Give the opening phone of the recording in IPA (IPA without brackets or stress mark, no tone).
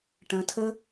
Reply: ʈ